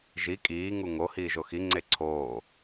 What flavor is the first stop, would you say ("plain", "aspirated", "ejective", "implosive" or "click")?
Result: ejective